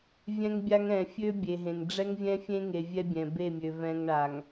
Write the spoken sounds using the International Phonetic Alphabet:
vʲɛ̃˦ŋbʲa˦ŋ ɛ̃˨ fʲø˦bʲe˨ɦẽ˨ŋ ɖ͡ʐɛ˦ŋvʲɛ̃˦fʲẽ˦ŋe˨ vʲɛ˦bʲɛ̃˨be˦˨mʲø˨ vɛ̃˨ŋɳa˨ŋ

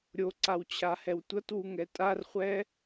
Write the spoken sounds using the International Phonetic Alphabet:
ɾʲoǀawt͡ɕʰahɛw tʷʌtwuŋɛ tʼarχʷɛ

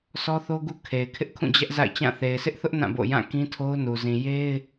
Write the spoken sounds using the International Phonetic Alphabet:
sɔ˦θo˦ɡu˦ kʰe˨ɪ̯kʰɪ˦ʔ kʰũ˦˨d͡ʑɛ˦ʔza̰˦˨ɪ̯t͡ɕã˦˨ θe˨ɪ̯sɪ˦ʔθʊ˦ʔ nã˦˨bo̰˦˨ jã˦˨kĩ˦tʰo˦ʊ̯nu˨ zĩ˨je˦ɪ̯

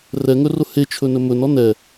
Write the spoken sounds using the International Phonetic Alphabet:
rɛŋɵrʊ het͡ʃʰɵnɵ mɵnɔ nɛ

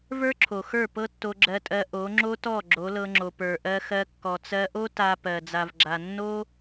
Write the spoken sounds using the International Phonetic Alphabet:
və˞˦ǁʰo˨xə˞˦˨ pɤ˦tːo˧ɡ͡ǁɜ˧tʼɜ˧ ʔo˨˦ŋ͡ǁo˦tɔ˦˨ ɡ͡ǁo˨˦lɤ˧ŋ͡ǁo˨ pə˞˨ʔɜ˧xɜ˧ kːɔ˨t͡sɜ˧ʔo˦ ta˧ pɜ˨ d͡za˨vɡ͡ǁa˨ nːo˦

